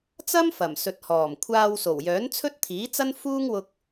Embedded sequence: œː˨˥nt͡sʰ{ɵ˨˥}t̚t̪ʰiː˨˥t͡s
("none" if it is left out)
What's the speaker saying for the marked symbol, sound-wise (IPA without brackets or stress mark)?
ɵ˥